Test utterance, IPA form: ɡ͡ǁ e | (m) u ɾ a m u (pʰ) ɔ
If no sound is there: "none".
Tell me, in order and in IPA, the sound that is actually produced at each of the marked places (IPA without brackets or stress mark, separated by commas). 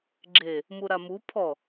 m, pʰ